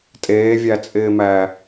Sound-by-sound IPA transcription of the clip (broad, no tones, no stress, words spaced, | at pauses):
tʼeːvʲæt͡sʼɪːmæ